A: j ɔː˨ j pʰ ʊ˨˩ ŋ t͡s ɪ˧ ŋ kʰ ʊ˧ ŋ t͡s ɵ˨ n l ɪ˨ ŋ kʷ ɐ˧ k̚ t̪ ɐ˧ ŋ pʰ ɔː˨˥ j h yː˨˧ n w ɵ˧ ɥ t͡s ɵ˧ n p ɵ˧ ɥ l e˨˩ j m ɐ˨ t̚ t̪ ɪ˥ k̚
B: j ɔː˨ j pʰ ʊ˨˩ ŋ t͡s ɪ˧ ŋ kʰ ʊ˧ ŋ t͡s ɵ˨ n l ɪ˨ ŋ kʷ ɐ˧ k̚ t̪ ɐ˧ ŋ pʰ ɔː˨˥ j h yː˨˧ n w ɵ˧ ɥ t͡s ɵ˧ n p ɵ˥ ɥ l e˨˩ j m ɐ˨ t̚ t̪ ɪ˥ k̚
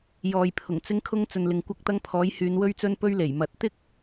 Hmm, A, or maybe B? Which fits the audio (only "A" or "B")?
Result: A